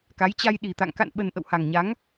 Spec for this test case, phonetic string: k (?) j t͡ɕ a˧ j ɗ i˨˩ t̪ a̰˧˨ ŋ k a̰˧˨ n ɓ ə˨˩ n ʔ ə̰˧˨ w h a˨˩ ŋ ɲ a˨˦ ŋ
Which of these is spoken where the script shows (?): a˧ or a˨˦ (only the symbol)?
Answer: a˨˦